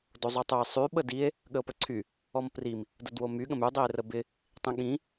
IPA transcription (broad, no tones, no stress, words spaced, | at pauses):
dozˤotˤoe̯ sˤy ɓədie̯ | ɠəo̯pəǀʰy | ɔmprim | dədwomy ɠə̃my dˤie̯rəbɪ | tˤĩɠĩ